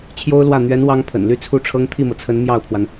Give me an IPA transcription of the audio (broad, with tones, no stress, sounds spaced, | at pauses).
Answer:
t͡ɕʰ j o˥ ʊ̯ l w ä˥˩ n̪ ɥ ɛ˧˥ n w ɑ˥ ŋ pʰ ə̰˨˩ n l y˥˧ t͡sʰ u˥˩ ʈ͡ʂʰ ɤ˥ ŋ t̪ʰ i˥˩ m ɤ˩ t͡sʰ ə˧˥ n m j ɑ˥˩ ʊ̯ pʰ w a˩ n